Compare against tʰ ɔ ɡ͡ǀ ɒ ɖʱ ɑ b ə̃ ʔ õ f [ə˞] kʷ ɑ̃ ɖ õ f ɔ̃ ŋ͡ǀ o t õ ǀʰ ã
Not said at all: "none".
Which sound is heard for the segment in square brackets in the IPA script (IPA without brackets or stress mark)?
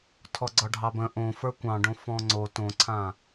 ə˞